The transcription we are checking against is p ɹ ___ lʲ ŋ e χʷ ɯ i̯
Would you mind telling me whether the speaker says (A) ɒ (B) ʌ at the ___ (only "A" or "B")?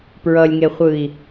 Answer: B